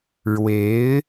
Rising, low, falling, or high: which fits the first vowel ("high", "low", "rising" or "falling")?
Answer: rising